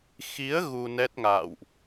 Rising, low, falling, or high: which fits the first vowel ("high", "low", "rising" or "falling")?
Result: rising